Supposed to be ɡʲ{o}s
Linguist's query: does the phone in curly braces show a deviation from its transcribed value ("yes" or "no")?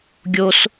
no